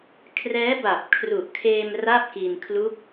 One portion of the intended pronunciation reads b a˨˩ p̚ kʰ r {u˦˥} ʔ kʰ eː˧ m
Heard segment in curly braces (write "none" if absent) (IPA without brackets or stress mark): u˨˩